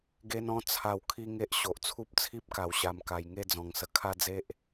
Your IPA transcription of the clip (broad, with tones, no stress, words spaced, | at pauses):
ɡe˦nɔ̃˦ t͡sʰa˧w kʰi˦ŋe˦ʔ ɕo˨ʔt͡sʰu˦p̚t͡sʰi˦p̚ka˨˩w ɕa˨˩mka˨˩jŋe˥˧d͡zɔ̃˨˩ŋ sə˨˩kʰa˥˧d͡ze˦ʔ